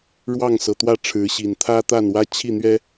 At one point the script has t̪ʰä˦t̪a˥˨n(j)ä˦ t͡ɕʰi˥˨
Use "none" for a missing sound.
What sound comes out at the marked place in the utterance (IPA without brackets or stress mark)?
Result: w